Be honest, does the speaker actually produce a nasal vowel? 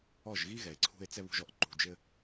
no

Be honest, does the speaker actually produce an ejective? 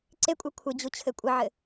yes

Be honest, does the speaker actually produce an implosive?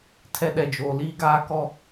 yes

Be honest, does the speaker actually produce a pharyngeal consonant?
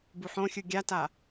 yes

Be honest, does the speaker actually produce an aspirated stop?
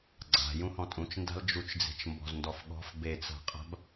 no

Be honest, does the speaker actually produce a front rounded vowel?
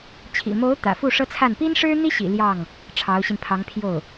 no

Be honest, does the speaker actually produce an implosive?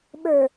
yes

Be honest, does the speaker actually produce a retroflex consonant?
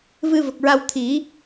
no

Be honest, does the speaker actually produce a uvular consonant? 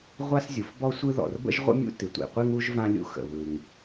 yes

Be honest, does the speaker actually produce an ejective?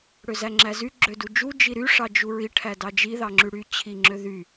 no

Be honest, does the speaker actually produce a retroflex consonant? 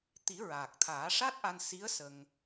yes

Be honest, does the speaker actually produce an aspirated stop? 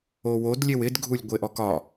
no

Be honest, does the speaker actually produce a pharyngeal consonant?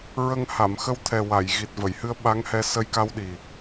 no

